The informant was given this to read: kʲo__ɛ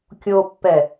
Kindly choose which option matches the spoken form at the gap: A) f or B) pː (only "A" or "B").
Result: B